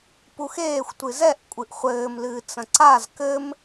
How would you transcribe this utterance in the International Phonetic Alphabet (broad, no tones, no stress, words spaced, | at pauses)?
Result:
puxeːxʷtʷɨ zɛʔ kʷʼɨʔχʷɘːm lɨːt͡sɐ̃ǀaz kɘm